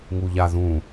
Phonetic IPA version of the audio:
ŋ u ʎ a ð ũ

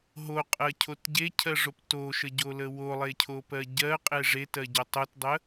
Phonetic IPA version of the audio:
ɦ o qʼ ɜ cʰ o t ɟ e cʰ ɜ ʐ o p t o ʃ ə ɟ o l ə w o lˠ e cʰ o p ɜ ɟ ɜ qʼ e ʐ e t ɜ ɟ o tˤ o t dˤ ə

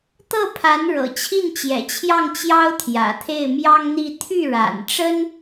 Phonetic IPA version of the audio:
t̪ ɤ˥˩ pʰ a˧˥ n ɻ ɤ̰˨˩ t͡ɕʰ i˥˩ n t͡ɕ j ɛ̰˨˩ t͡ɕʰ j ɑ˥˩ ŋ t͡ɕ j ɑ˥ ʊ̯ t̪ʰ j ä̰˨˩ t̪ʰ e˥˩ ɪ̯ m j ɑ˥ ŋ n̪ i˥˧ t̪ʰ y˥˩ ɻ a̰˨˩ n ʈ͡ʂ ə˥ n

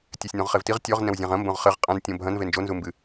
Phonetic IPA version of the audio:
tʲ ɛ sʲ n õ ʁ χ e v t i ʁ tʲ ɔ ʁ n ɛ̃ w zʲ ã ʁ ɐ̃ m b õ ʁ χ ɘ ʁ qʼ ã n tʲ õ bʱ ɐ̃ n v e n d͡ʒ o n z u m b ɨ

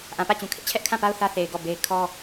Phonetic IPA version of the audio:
ʔ ã˨ p ä˦˨ t͡ɕ ũ˨ kʰ ɪ˦ ʔ t͡ɕʰ ɛ˦ ʔ kʰ ã˦˨ p a˦ ʊ̯ θ ä˦ θ e˨ ɪ̯ ɡ ɔ˦˨ b e˦ ɪ̯ kʰ ɔ˦

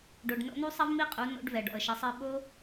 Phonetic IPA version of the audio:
ɖ o˧ ɖ n o̰˦ n u˦ sˤ ɐ˦ v m i˦ qʼ u˨˦ n o̰˧ ɖ v ɛ˨ ɖ ɔ̰˨ ə̯ ʃ ɐ˨˦ sˤ ɘ˧ ɓ o˦

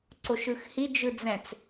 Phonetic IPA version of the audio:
ǀ o ʃ ɯ x h i d͡ʒ ɯ d͡z ɛ̃ t͡s

